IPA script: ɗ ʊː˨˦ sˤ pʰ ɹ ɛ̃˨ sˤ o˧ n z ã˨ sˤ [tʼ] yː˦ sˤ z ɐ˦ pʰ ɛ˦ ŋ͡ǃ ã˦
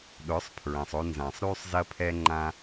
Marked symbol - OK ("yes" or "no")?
no